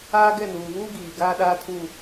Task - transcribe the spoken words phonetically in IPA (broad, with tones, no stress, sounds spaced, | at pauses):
aː˦ ɡ ɛ˦˨ n uː˨ β uː˦ ɡ iː˨ ɡ aː˦ ɗ aː˦ tʰ u˦˨